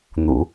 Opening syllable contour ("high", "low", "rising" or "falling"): low